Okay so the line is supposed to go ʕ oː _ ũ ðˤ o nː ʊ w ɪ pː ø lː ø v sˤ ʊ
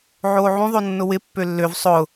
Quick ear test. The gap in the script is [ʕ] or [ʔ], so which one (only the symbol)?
ʕ